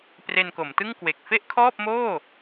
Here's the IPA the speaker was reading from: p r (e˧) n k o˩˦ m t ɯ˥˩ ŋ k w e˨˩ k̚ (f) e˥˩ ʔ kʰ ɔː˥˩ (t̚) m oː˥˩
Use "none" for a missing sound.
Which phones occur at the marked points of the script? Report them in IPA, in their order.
e˧, f, p̚

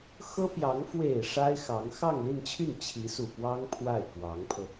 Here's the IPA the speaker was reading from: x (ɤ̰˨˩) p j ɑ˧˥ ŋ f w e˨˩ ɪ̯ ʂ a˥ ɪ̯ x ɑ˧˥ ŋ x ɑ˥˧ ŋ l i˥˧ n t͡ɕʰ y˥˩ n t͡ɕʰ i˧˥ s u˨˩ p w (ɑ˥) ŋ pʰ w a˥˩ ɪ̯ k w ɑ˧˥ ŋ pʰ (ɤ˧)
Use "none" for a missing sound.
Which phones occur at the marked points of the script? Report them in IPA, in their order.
ɤ˥, ɑ˥, ɤ˧

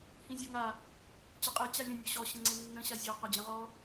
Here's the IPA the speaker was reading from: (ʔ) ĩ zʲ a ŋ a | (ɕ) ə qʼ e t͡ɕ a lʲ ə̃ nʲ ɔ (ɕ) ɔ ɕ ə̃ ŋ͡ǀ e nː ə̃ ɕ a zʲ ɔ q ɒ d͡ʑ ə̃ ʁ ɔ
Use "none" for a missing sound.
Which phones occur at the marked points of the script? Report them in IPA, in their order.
h, t͡ɕ, ɕ

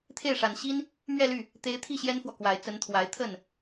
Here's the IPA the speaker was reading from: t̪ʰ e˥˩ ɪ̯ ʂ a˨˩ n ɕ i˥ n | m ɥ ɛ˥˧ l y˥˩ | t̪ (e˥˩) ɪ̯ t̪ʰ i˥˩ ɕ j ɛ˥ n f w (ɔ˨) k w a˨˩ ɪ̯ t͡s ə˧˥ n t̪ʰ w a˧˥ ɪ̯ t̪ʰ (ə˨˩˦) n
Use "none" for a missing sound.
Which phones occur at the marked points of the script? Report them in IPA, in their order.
e˧˥, ɔ˨, ə˥˩

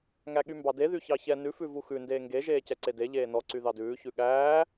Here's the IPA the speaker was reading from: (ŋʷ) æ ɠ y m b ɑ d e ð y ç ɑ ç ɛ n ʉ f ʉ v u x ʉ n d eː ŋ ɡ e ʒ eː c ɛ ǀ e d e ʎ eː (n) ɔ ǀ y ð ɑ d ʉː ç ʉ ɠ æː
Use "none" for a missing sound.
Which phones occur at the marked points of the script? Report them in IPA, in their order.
ŋ, n

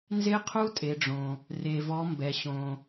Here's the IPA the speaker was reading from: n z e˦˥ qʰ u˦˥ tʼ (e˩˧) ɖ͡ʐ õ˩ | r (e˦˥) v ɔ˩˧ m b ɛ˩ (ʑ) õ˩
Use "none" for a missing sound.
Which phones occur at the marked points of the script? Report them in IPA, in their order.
e˩˧, e˩, ɕ

